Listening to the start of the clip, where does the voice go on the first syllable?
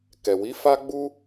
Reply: low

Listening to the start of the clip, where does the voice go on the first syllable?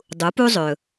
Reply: rising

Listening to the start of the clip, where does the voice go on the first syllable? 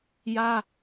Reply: high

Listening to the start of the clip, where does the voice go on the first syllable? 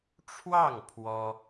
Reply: falling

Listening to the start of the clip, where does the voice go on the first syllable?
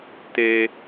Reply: low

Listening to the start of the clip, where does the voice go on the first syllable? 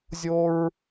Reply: high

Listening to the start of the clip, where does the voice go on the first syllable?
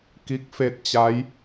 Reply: rising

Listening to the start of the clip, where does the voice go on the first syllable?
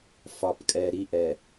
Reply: low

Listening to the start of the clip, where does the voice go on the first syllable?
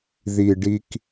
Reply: low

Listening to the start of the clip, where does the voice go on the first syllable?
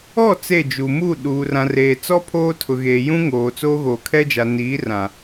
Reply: falling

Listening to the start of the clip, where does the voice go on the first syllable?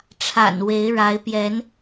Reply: low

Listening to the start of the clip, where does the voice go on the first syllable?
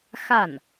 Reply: falling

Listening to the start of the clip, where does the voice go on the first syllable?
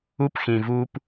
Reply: high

